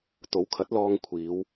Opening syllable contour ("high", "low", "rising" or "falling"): rising